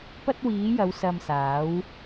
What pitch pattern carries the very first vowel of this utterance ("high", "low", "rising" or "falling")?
high